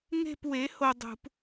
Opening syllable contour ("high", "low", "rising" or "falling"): falling